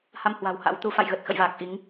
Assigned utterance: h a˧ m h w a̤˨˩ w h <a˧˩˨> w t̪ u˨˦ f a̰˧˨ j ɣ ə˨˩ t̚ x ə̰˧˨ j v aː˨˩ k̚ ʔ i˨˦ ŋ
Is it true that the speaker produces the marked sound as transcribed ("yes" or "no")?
no